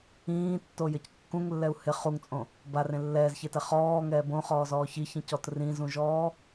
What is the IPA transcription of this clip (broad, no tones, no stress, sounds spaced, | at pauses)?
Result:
ĩː tː o j ɪ c kː ũ ŋ lː ɛ u̯ h ɪ χ u ŋ t͡sʼ õ | b a r ẽ lː ɛː z ç e t ɛ χ ɔː ŋ ɛː b õ χ ɔː z ɔː ç i ç ĩ c ɔ t r ĩ z ũ ʒ ɔː